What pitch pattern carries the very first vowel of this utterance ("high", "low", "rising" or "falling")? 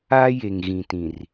high